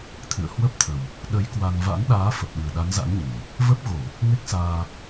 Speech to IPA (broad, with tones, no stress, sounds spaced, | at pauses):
t̪ʰ ɨ̰˧˨ ə̯ h w ə˦˥ p̚ t̪ʰ ə˨˩ w | ɗ ə˨˦ j k w a˧ n v a̰˧˥ n ɗ aː˨˦ f ə˨˩ p̚ ɗ ɨ˨˩ ə̯ ɗ a˨˦ n z a̰˧˥ n ɲ ɨ˨˩ j | v ə˦˥ p̚ ɣ o˧˩˨ | ŋ e˦˥ k̚ s aː˧